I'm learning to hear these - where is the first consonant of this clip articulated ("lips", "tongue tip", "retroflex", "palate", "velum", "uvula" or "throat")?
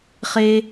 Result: uvula